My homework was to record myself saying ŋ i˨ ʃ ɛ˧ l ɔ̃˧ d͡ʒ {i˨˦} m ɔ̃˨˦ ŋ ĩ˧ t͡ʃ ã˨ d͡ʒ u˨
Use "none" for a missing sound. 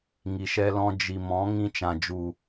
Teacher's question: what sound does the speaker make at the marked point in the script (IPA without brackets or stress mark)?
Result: i˨